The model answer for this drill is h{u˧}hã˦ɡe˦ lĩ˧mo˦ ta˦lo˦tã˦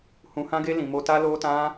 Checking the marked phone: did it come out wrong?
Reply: yes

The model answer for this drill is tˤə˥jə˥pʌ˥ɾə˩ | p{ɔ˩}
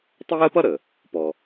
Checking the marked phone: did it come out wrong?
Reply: no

